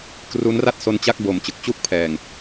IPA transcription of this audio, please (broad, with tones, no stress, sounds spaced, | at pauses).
k r u˦˥ n r a˥˩ t̚ s o˧ n t͡ɕ a˥˩ k̚ b o˨˩ m t͡ɕ ɯ˨˩ k̚ t͡ɕ u˥˩ k̚ pʰ ɛː˨˩ ŋ